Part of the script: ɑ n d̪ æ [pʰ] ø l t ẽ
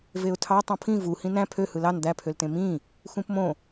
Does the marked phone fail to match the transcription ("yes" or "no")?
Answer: no